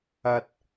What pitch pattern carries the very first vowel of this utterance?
low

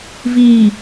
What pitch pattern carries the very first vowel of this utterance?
low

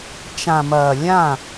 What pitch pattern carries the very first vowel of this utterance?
low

